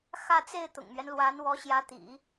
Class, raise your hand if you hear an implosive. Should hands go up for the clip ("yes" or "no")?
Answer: no